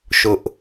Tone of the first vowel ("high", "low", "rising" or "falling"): high